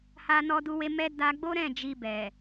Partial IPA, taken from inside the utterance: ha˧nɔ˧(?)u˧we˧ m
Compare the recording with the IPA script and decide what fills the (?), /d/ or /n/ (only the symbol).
d